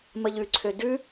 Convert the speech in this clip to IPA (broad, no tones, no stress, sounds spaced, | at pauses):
m ə ʎ ʉ ǀʰ ø d ʉ